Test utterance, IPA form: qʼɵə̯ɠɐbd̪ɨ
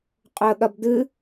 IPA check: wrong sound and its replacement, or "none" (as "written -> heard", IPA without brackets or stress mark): none